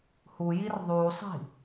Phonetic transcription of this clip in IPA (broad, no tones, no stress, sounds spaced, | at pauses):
h u j i r ðˤ u sˤ i̤